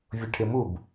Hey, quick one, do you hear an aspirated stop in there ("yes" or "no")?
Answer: yes